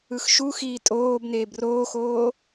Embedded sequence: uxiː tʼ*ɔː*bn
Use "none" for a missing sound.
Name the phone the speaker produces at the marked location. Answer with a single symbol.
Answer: oː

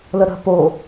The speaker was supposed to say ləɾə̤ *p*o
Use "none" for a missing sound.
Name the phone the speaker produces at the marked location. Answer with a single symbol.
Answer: p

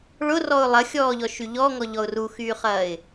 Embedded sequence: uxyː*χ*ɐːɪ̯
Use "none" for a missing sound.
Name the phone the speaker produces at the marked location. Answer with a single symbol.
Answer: χ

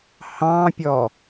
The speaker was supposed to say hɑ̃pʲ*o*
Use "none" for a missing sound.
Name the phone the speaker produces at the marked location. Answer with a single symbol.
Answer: ɔ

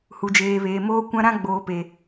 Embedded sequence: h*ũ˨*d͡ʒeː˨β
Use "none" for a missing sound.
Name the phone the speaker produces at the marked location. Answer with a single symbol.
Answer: u˨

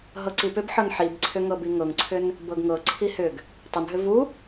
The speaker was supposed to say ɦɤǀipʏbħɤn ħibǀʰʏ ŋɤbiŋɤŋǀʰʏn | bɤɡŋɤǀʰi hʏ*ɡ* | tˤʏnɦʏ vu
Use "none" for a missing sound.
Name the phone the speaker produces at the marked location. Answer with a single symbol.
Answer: ɡ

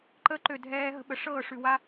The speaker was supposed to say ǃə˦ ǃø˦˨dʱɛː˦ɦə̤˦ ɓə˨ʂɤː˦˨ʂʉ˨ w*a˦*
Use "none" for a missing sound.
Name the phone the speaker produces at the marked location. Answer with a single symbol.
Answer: a˦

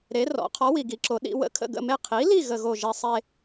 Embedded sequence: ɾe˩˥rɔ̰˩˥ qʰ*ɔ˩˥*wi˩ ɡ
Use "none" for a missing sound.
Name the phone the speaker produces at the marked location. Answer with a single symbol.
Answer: ɔ˩˥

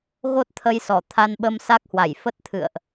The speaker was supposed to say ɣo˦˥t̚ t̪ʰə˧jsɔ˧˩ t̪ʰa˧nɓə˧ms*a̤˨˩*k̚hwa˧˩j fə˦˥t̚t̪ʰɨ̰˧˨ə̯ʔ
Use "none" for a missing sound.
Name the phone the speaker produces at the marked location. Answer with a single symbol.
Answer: a˦˥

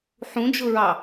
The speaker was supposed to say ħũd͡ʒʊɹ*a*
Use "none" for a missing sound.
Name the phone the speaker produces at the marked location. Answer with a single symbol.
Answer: ɑ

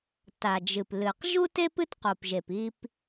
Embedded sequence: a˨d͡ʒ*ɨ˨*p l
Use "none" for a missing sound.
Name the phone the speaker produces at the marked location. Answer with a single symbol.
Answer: ɨ˨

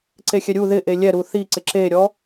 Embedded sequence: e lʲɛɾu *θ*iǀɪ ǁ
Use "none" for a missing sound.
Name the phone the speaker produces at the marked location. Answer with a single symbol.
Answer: θ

